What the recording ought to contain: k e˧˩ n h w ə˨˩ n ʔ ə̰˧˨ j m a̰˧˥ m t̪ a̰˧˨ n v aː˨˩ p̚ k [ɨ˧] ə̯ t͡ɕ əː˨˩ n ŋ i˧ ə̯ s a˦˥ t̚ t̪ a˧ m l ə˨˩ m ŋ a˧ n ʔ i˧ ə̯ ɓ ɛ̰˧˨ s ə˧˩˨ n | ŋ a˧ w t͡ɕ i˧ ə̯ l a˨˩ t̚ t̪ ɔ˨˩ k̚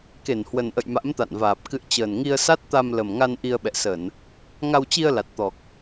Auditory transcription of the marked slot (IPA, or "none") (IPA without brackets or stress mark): ɨ̰˧˨